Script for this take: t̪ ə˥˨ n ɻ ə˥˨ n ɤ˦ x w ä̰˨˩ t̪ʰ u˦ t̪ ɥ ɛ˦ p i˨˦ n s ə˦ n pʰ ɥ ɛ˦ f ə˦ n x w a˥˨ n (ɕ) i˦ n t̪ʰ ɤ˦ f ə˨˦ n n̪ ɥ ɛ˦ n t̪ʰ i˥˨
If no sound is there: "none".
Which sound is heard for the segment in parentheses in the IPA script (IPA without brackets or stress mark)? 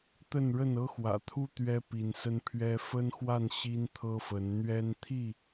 ɕ